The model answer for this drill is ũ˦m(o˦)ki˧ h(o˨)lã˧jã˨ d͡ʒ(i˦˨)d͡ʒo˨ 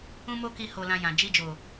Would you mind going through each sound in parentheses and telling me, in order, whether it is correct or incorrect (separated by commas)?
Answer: correct, incorrect, incorrect